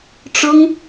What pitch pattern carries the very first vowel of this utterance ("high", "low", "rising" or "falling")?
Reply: high